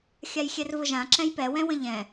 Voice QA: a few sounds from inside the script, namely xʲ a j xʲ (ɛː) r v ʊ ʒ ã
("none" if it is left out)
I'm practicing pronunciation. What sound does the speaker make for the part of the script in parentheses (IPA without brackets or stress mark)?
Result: ɛ